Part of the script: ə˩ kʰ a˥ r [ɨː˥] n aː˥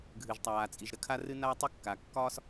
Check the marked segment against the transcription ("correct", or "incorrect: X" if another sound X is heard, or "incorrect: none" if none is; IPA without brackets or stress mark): incorrect: ɨ˥